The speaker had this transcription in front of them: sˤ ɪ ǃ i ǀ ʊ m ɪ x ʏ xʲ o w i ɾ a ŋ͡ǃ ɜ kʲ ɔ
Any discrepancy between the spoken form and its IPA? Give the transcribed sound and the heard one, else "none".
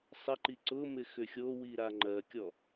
none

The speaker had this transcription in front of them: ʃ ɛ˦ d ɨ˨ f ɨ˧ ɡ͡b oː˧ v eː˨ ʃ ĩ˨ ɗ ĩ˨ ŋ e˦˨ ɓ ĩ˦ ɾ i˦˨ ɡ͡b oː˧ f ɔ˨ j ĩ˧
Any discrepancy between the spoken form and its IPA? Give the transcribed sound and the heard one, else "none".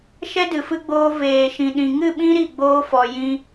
e˦˨ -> ɨ˦˨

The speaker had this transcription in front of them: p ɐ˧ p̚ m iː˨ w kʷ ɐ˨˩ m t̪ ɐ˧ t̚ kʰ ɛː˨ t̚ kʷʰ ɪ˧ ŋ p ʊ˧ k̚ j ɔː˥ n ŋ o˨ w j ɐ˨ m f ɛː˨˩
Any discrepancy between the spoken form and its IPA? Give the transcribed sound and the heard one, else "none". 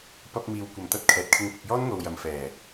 kʷʰ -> kʰ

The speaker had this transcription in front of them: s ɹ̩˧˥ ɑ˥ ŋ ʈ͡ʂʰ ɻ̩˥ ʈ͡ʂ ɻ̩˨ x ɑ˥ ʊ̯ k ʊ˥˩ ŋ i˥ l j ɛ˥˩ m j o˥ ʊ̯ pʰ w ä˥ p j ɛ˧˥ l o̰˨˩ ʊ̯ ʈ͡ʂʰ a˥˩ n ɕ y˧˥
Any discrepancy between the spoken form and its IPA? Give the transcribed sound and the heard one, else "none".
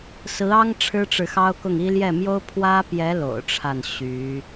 none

